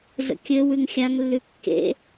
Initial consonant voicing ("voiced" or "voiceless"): voiced